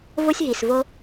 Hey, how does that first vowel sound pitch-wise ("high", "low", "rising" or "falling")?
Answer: high